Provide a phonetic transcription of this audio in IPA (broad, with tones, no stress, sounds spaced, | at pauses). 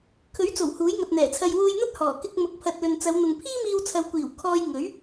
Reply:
kʰ ɵ˨˥ ɥ t͡s o˨˩ w h uː˨˥ j ŋ ɐ˨ t̚ n̪ ɛː˨˩ t͡sʰ ɐ˨ j w uː˧ j n̪ ɐ˥ t̚ h ɔː˨˩ k ɪ˧ k̚ m ʊ˨ k̚ pʰ ɐ˨ t̚ l ɵ˨ n t͡s ɐ˨˧ w n̪ ʊ˨ ŋ pʰ iː˥ m iː˧ w t͡sʰ ɐ˨˧ w kʷ iː˨˩ w kʰ ɔː˧ j ŋ ɵ˨˥ ɥ